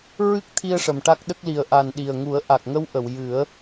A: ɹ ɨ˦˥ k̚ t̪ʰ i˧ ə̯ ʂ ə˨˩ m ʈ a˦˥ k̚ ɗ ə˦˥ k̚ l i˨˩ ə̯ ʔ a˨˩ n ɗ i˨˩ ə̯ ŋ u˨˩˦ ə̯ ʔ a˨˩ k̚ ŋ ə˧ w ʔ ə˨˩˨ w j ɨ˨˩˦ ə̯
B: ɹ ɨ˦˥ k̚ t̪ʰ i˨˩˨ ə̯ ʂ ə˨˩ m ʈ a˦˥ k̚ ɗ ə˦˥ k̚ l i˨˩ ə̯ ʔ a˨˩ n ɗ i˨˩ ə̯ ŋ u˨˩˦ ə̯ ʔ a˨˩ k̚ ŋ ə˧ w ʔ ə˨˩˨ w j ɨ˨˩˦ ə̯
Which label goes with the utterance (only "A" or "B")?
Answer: A